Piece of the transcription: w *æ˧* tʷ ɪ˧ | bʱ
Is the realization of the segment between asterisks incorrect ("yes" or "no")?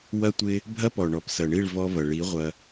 yes